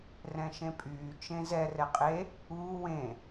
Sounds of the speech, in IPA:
rɛ̃ʃẽpʼyː t͡ʃẽzɛ rɛqʼe | uː wẽ

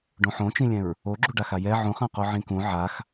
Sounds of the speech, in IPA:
ɖõħõt͡ʃĩlʲɛ̃ɹ | oɡ͡ǁu ɖaxajɛ ʕũχãqo ʕĩkũ ʕax

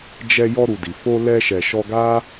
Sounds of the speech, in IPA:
d͡ʒɛ˧ jɔ˧ɾu˨di˨ fo˧ lɛ˧ʃɛ˨ ʃɔ˧ɡa˦

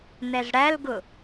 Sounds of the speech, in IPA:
nɛzɽælɡʊ

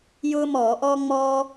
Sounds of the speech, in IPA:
jʊː˥mɔː˧˩˧ʔɔː˥ ŋ͡mɔː˥

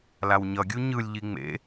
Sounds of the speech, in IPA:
lawɲʌɡʲu ɲɯlʲʎi ŋ͡mḛ

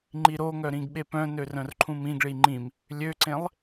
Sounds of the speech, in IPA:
ŋ͡ǃiɾoŋœ ɾĩɡɓepœ̃nør œ̃rǃʰũmĩɡɭi ŋ͡ǃĩm | lʲøǀẽlˠ

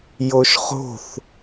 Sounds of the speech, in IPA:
joʃχo̤θ

